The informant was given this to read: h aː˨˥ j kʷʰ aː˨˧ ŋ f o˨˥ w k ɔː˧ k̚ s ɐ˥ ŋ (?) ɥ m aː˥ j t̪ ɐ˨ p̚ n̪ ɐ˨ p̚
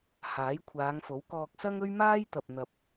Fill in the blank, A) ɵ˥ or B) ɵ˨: A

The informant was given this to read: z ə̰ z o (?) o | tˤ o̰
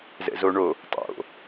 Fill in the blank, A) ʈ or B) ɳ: B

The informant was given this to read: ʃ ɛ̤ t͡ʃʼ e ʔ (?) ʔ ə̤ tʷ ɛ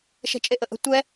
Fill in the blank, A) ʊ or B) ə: B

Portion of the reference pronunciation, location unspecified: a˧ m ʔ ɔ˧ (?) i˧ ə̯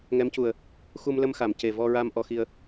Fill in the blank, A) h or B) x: B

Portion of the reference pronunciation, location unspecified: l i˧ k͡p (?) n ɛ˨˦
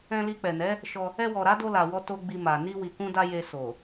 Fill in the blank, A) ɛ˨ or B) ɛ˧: A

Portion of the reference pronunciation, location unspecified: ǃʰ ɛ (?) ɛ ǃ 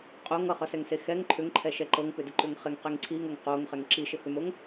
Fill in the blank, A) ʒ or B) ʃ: B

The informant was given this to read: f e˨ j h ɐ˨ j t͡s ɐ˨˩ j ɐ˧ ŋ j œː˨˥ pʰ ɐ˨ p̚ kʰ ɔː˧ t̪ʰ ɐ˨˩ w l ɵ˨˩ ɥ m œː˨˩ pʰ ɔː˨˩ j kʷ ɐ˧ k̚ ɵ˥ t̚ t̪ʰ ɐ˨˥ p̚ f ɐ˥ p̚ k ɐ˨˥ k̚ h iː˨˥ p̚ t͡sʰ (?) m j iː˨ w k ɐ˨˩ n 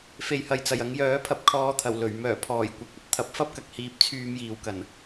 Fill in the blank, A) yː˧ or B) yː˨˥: A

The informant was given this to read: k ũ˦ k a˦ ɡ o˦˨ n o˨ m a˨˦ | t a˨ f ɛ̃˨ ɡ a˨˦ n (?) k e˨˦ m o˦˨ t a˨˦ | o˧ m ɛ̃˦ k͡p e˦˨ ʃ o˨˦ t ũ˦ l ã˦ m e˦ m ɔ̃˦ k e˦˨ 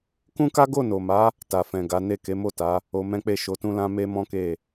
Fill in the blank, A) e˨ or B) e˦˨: B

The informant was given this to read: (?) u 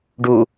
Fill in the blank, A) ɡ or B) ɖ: B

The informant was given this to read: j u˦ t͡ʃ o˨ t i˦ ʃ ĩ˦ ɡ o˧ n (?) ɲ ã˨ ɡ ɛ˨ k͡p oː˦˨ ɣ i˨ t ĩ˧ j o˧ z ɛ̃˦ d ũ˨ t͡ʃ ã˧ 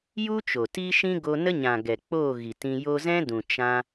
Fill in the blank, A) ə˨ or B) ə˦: B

